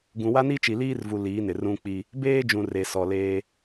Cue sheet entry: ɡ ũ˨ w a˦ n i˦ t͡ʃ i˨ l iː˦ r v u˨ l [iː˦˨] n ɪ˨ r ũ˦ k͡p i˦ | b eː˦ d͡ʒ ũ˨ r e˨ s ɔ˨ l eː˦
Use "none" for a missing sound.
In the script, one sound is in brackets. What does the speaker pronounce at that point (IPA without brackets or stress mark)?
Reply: iː˨˦